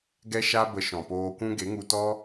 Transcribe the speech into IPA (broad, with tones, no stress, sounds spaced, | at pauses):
ɡ ɛ˦ ʃ a˦ b ə˧ ʃ ɔ̃˨ p oː˧ kʷ ũ˦ ɡ e˨˦ ŋ u˧ t ɔ˦